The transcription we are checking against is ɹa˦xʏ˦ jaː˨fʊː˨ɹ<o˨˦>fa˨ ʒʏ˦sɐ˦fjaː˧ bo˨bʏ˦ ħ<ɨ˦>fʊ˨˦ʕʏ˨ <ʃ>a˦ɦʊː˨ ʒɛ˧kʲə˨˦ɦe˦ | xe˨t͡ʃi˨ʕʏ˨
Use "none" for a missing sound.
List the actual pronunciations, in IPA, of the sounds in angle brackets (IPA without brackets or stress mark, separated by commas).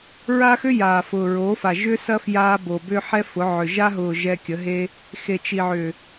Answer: o˨˦, ɛ˦, ʒ